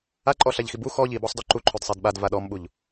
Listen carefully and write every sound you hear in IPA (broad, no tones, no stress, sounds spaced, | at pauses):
a ǃʼ ɔ ɬ a ʎ x i b u x ɔ ʎ i b ɔ sˤ d ɔ ǃ u ǃʰ o d sˤ ɛ d ɓ a d v a ɗ ɔ m ɓ u ʎ